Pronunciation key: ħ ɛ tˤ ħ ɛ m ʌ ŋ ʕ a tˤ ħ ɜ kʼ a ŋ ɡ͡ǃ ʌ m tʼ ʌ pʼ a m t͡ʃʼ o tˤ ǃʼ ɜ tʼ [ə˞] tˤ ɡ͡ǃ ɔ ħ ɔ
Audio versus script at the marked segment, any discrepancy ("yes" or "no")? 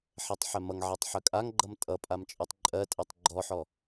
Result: yes